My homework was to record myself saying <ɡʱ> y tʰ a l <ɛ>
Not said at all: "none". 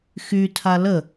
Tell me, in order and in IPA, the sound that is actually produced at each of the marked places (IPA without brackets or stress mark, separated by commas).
x, ə